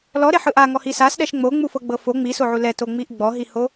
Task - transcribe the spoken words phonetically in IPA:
l ɔ ɾ e ħ ɯ ʔ a ŋ ɔ h i s a s ɗ ɛ ʃ ŋ͡m o ŋ͡m u f ɤ ɡ͡b ɤ f o ŋ͡m i s o ʕ u l ɛ t o ŋ͡m i ʔ ɡ͡b ɔ ɦ i h o

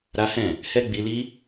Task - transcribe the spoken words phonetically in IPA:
ɾ a˦ h ɛ̃˦˨ | h ɛ˦ ɡ͡b i˧ l i˦

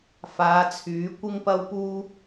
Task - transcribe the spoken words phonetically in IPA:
f aː˨˧ t͡sʰ yː˨˥ kʷ ɪ˥ ŋ p ɐ˥ w p uː˥

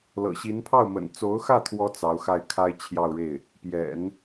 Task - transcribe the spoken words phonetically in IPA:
l ɤ̰˨˩ ɕ i˧˥ n pʰ ɑ˥˩ ʊ̯ m ə̰˨˩ n t͡s o˧˥ ʊ̯ x ä˥˩ t̪ʰ w ɔ˧˥ t͡s ɑ˧˥ ʊ̯ x a˥˩ ɪ̯ kʰ a˥ ɪ̯ t͡ɕʰ j ɑ˥˧ ʊ̯ ɻ e˥˩ ɪ̯ | p j ɛ̰˨˩˦ n

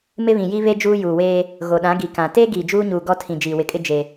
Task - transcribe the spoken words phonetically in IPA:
m ɪ˦ β ĩ˨ j i˦ β e˦ d͡ʒ uː˦ j uː˨ w eː˦ | ɣ o˨ ɗ ã˨˦ ɡ i˨ k ã˨ t eː˦ ɡ iː˨ d͡ʒ uː˦ ɲ uː˨ ɡ ɔ˦ tʰ ĩ˨ d͡ʒ iː˨ w ɪ˨ kʼ ɪ˦ d͡ʒ e˨

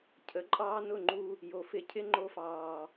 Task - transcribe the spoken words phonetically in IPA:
cʰ ə˨˦ ǃʼ ɑː˦ n ʊ˦˨ ŋ͡ǃ u˧ | j o˨ f ɪ˧ cʰ ɪ˦ ŋ͡ǃ o˧ f ɑː˨

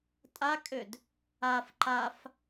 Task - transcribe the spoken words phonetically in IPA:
tʼ a kʼ ø d | a f ǃ a f

